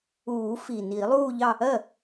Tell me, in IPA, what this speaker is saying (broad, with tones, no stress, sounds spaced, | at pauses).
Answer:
uː˨˩˦ f i˨˩ n iː˨˩˦ lˠ uː˥˧ ʎ ɑ˥˧ | ɜ˥˩